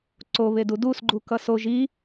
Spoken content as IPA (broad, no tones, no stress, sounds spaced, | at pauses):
ǀ o β e d u d u s ɡ͡ǃ u k ʌ s o ʒ i